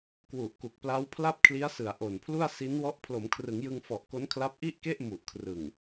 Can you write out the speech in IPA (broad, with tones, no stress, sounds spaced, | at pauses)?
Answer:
k w u˨˩ ʔ k u˨˩ k̚ p l a˦˥ w pʰ l a˥˩ p̚ kʰ l i˦˥ a̯ s ɯ˨˩ a̯ ʔ o˨˩ n pʰ l u˥˩ a̯ s i˦˥ n w ɔ˦˥ ʔ pʰ l o˩˦ m kʰ r ɯ˩˦ ŋ j ɯ˧ ŋ f ɔ˨˩ ʔ k o˦˥ n kʰ l a˦˥ p̚ ʔ i˥˩ ʔ k e˥˩ ʔ m u˨˩ ʔ kʰ r ɯ˨˩ ŋ